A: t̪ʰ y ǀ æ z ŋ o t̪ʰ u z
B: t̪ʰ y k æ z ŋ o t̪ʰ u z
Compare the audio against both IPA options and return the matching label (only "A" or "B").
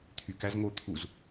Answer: B